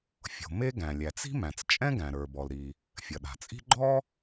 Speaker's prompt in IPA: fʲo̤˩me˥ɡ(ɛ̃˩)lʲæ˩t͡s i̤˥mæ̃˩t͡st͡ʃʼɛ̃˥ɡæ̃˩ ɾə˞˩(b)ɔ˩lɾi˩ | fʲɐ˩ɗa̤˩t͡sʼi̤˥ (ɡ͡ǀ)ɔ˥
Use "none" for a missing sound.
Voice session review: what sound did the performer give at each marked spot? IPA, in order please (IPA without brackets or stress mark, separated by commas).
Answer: æ̃˩, b, ɡ͡ǃ